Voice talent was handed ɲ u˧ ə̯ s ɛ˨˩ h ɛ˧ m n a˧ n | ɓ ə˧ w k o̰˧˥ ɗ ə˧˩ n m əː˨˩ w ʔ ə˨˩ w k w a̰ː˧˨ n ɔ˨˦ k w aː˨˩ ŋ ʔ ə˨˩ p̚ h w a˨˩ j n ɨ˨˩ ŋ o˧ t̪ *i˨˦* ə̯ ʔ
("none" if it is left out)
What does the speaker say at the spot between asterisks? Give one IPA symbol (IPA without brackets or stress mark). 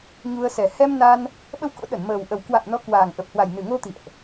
ḭ˧˨